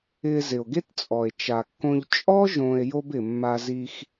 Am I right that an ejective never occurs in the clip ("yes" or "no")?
no